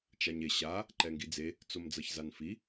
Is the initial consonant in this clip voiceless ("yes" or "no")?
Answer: yes